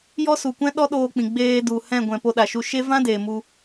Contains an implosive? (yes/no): yes